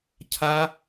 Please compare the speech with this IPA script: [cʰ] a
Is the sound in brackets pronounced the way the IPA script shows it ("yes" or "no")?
yes